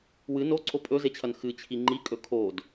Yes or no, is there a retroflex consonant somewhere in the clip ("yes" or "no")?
no